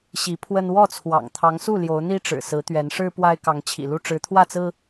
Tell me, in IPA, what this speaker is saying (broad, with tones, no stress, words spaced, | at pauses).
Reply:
ɕi˨˦ pʰwə˦n wɔ˥˨t͡sʰwɑ̰˨˩ŋt̪ʰɑ˨˦ŋsu˥˨ ljo˨˦ʊ̯n̪i˦ʈ͡ʂɻ̩˨˩ sɹ̩˨˦t̪ɥɛ˨˦nʂɻ̩˦ pwa˦ɪ̯ kɑ˨˦ŋt͡ɕʰḭ˨˩lu˥˨ ʈ͡ʂɻ̩˨˦t̪ʰwä˥˨t͡sɹ̩˦